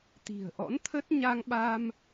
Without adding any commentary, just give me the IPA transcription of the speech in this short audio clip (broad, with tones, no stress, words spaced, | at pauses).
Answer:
t̪i̤˨˩ə̯ʔɔ̰˧˥nt̪ʰə˦˥t̚ ɲa˧ŋɓa˧m